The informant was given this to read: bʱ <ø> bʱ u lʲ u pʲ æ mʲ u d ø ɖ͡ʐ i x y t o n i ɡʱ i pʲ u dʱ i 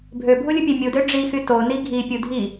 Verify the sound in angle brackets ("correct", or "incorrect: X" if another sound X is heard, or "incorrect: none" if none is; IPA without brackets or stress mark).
correct